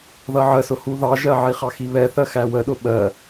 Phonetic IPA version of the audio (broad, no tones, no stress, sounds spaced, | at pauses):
ð ʌ ʕ ə s ʊ h u ð ɑ ʒ ɜ ʕ i χ ɑ x i β ɛ θ ɜ x æ w ə ɗ ʊ ɓ ɜ